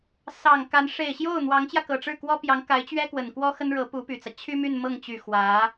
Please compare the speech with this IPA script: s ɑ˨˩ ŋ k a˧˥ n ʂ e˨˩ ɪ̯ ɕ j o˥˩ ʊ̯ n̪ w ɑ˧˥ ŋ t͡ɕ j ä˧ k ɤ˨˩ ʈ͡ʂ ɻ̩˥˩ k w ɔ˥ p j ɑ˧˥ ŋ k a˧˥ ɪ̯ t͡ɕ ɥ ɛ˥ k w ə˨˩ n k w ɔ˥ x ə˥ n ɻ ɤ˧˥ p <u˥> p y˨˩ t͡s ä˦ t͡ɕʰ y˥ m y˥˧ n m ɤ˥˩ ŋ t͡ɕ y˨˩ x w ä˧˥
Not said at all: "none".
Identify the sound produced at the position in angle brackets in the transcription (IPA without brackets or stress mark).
u˧˥